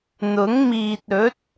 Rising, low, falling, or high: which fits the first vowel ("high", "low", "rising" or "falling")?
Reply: rising